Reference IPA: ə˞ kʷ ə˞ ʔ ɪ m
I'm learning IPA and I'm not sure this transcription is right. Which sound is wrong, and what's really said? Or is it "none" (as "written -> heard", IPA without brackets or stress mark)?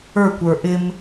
none